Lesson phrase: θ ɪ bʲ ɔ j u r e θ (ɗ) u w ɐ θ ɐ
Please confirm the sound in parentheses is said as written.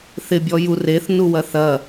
no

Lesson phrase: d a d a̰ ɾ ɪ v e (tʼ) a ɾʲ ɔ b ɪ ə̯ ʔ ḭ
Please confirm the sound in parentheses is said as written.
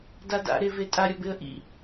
yes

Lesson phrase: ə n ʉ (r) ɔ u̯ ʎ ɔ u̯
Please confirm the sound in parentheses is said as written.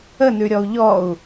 no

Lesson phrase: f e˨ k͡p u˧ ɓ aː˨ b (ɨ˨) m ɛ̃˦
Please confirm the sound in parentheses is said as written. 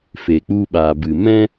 yes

